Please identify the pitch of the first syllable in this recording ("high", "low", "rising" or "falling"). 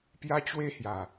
high